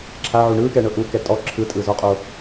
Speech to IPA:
ǁʰ a ʕ u ɳ ɯː k ɛː ɳ ɤ ʔ u k ɛ tʼ ɔ ǁʰ ɯ tʼ ɯ z ɔ qʼ o

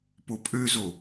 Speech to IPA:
p o pʼ ø z o

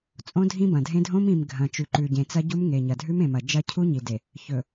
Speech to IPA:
t͡sʼ õ˦ dʱ ĩ˦ b ɐ̃˨ dʱ ẽ˦ dʱ õ˦ m ĩ˨ m ɡʱ ɐ̃˨ t͡ʃ ʉ˨ ǃ ʉ˨ ɟ ẽ˨ t͡s ɐ˦ ɟ u˦ m ŋ e˨ ɲ ɐ˨ dʱ ʉ˦ m ẽ˨ m ɐ˨ d͡ʒ ɐ˦˨ cʰ u˦ ɲ i˨ d e˨ | ç ɵ˨

